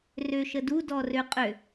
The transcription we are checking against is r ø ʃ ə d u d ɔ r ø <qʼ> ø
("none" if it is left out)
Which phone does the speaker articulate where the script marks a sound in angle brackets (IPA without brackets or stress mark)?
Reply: qʼ